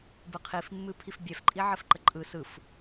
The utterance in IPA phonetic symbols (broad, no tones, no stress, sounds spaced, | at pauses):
b ɯ qʰ i f mː ɨ pʰ i f bʲ ɛ f ǃʼ i ʕ ə f ǃ ə ǃʼ ɯ s ɯ f